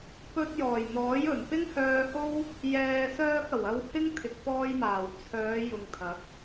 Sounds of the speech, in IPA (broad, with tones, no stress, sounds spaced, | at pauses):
p ɵ˧ t̚ j ɔː˨˩ j n̪ ɔː˨˥ j ɵ˨˩ n p ɪ˥ ŋ h œː˧ h o˥ w | j ɛː˨ s œː˧ k̚ ɐ˨˩ w ɐ˧ w h ɪ˥ ŋ t̪ʰ ɪ˨ k̚ p ɔː˧ j m aː˨˩ w t͡sʰ œː˨˧ j ʊ˨ ŋ t̪ʰ ɐ˨˥ k̚